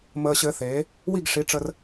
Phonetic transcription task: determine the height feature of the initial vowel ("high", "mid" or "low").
mid